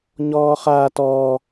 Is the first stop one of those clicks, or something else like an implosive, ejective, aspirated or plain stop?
plain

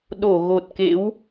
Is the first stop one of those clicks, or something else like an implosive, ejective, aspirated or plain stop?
implosive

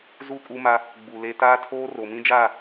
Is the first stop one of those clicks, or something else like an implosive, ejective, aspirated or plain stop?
ejective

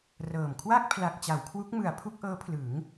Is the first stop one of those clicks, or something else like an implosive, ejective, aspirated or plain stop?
aspirated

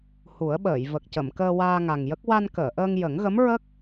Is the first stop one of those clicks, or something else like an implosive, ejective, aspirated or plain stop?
implosive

